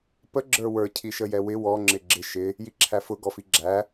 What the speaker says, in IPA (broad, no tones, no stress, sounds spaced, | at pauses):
p ə ɡ͡ǁ ə˞ w ə˞ cʰ i ʃ ə j ɛ w ɪ w ɔ ŋ͡ǁ ɪ ɡ͡ǁ ɪ ʃ ɪ | j i ǁʰ æ f ʊ ɡ ɔ f i ɡ͡ǁ æ